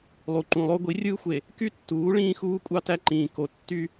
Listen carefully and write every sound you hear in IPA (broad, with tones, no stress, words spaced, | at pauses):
lˠu˨ǃũ˨lˠo˦ ɡʷi˨˦rʲɯː˦xʷe˨ | ky˦tːuː˨˦ ɭĩː˦xuː˦ kʷʼɑ˦tæ˦ǃĩː˨ ko˨ tːy˦